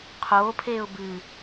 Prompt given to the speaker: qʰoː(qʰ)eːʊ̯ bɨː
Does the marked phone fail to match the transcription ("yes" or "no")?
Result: yes